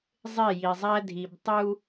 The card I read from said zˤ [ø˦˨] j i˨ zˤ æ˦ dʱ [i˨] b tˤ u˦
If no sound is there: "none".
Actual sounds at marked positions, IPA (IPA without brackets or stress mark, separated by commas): e˦˨, i˨